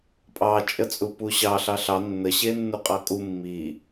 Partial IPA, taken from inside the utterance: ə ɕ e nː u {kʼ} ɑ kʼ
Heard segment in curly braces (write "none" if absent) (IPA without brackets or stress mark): qʼ